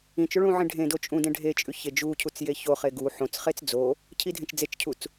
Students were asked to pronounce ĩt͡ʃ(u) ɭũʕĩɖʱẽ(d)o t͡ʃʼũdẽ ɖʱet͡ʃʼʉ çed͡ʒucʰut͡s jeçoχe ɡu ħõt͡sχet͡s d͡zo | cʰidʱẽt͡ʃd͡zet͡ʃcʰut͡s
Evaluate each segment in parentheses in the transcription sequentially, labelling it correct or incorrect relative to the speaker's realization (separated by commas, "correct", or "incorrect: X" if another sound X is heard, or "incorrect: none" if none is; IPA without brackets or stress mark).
incorrect: o, correct